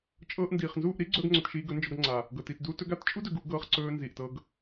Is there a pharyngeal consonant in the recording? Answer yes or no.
no